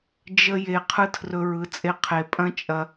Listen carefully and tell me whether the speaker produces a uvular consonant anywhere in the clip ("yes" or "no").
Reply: yes